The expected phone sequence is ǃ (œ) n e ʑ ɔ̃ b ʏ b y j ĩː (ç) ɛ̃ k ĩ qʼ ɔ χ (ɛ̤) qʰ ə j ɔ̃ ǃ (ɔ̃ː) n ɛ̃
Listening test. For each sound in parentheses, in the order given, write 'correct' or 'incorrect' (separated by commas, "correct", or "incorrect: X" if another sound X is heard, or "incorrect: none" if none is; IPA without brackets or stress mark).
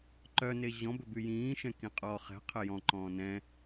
correct, incorrect: ʃ, correct, correct